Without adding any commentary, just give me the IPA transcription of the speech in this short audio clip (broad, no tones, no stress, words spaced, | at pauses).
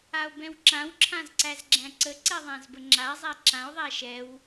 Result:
ao̯bɛ̃wǁãw ǁʰãzǀæzɡ͡ǁæ̃ǀə ǀɛðˤæ̃zbəŋ͡ǁa zˤæǁão̯ ðˤæʃɛw